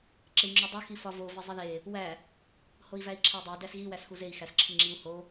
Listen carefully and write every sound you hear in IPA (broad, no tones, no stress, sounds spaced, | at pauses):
ǁ e i̯ ŋ͡ǁ o dˤ o x i f ɒ v o v i zˤ i ð e | w æ | h o i̯ v æ i̯ ǁʰ æ dˤ æ d æ s ɣ i w æ s x u z e i̯ x æ s ǁʰ i ŋ͡ǁ i u̯ h o